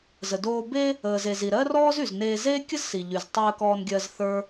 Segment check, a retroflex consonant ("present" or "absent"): absent